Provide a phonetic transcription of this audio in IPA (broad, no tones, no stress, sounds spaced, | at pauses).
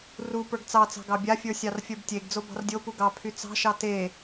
r u p ə˞ ɡ t͡s ɑ t͡s ɑ̤ ɡ ɑ bʲ a fʲ ə˞ sʲ ɑ r fʲ ə˞ b tʲ e ɡ d͡z o b ɑ̤ r dʲ o p u ɡ ɑ pʰ y t͡s ɑ̤ ʃ ɑ t e